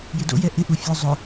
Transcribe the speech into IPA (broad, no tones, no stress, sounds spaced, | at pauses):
j ɪ d o̰ j ɛ ʔ ɪ ʔ u fʲ ʊ zˤ ʊ